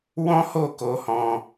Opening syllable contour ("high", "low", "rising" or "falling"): high